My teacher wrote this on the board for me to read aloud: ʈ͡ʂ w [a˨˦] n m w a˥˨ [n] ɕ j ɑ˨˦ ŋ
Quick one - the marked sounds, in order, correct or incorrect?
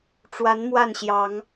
correct, correct

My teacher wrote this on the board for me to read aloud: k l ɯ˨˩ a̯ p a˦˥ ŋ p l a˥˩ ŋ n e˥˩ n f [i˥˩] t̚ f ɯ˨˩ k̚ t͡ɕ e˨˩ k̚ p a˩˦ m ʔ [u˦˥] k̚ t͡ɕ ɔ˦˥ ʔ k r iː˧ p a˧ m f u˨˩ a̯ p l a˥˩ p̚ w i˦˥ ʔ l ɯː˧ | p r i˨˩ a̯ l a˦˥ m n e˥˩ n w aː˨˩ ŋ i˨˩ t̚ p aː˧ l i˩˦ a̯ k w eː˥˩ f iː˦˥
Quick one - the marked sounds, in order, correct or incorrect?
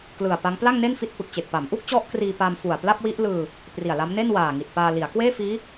correct, incorrect

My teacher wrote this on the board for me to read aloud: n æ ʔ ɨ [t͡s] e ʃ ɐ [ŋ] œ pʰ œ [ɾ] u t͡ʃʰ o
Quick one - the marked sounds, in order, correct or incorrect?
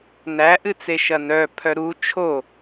correct, incorrect, correct

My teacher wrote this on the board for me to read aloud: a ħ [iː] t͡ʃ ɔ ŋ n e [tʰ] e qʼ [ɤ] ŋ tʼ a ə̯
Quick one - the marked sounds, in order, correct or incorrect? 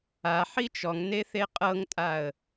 incorrect, incorrect, correct

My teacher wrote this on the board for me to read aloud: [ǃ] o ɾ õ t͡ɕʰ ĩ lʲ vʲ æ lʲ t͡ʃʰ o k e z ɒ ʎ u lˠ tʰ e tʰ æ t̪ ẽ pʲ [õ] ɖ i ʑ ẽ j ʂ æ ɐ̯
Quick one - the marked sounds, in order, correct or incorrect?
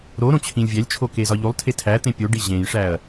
incorrect, incorrect

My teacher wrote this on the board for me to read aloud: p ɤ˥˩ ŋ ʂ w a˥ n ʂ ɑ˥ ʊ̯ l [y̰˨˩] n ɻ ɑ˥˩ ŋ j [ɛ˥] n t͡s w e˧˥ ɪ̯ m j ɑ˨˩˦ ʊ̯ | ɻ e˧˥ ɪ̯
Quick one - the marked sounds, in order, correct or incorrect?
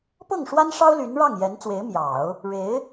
incorrect, incorrect

